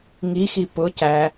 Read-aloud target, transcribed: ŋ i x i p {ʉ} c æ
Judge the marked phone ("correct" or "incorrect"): incorrect